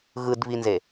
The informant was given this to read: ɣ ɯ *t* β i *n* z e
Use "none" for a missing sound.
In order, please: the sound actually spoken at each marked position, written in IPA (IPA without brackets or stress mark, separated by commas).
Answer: d, n